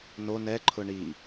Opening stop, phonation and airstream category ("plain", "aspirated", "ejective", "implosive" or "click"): click